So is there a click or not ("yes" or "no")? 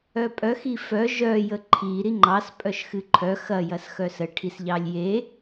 yes